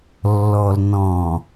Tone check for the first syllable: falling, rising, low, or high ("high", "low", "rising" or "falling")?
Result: low